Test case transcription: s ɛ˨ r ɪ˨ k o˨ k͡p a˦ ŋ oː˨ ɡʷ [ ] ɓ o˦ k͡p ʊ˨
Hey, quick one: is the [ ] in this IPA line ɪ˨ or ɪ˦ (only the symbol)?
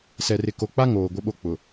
ɪ˦